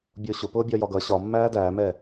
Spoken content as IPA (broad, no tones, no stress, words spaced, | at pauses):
bʲʊːɕʊpʊː bʲɒjɒɡʌ ɕɒ mːæːdæːmɛː